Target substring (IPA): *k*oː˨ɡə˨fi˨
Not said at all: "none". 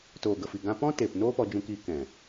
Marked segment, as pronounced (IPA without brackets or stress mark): t